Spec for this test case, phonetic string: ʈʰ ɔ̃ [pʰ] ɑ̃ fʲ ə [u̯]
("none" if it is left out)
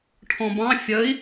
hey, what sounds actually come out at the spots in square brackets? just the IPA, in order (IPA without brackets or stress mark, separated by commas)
b, i̯